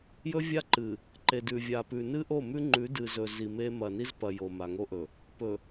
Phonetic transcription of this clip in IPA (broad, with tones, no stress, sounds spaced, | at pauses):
j ɵ˦ vʲ a˦ ǃ ɨ˨ | ǃ e˨ d ʉ˨ vʲ a˨ p ʉ˨ n ɨ˦ ʔ o˦˨ m ʉ˦ ŋ͡ǃ ʉ˨˦ d ɨ˨ z ɵ˨ z i˨ m e˦ m ɐ˨ n i˦ z p ɐ˨ j o˨ m a˨ ŋ o˦ ʔ ɵ˨ | p ɵ˨